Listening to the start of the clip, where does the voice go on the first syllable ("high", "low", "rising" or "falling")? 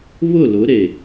falling